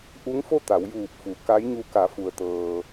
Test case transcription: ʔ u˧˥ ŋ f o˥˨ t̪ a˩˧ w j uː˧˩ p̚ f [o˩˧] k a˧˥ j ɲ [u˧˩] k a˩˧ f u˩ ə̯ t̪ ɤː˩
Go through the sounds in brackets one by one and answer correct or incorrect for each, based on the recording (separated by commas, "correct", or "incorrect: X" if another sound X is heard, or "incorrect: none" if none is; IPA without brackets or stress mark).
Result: incorrect: u˩˧, incorrect: u˧